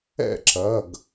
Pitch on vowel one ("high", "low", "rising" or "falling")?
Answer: falling